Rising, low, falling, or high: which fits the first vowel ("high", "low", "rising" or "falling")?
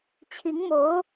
rising